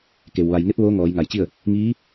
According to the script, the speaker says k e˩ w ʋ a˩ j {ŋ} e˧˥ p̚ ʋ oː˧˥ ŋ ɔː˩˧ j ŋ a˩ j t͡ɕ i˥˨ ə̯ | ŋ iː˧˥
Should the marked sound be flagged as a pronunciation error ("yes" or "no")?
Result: no